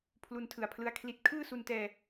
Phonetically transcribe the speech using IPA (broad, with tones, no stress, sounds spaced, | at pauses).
pʰ l u˧ n tʰ ɯ˨˩ a̯ pʰ l ɯ˦˥ a̯ kʰ l i˦˥ t̚ kʰ ɯː˥˩ s u˧ n t ɛː˧